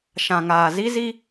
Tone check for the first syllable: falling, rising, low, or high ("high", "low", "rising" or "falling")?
low